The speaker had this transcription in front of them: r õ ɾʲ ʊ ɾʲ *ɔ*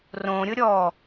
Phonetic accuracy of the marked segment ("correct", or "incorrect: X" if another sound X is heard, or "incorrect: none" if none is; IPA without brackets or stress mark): correct